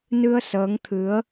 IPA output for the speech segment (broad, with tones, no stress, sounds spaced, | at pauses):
n ɨ˧ ə̯ s əː˨˦ ŋ t̪ʰ ɨ˨˦ ə̯